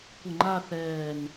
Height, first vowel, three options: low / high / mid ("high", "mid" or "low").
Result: mid